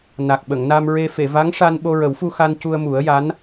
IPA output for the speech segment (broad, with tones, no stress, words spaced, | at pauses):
na˨˩k̚ɓə˨˩˨ŋna˧m ɹe˧ fe˨˩˨va˧˥ŋʂa˧n ɓo˧ɹə˨˩˦wfu˧ xa˧n cu˧ə̯mu˨˩˦ə̯ja˧˥n